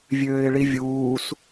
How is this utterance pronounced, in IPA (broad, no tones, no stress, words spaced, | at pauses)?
vʲøːɪ̯ɭivʲuːs